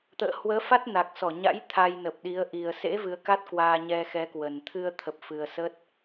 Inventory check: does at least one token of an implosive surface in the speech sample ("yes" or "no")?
yes